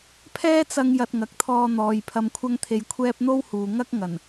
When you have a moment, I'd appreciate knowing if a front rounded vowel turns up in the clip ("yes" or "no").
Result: no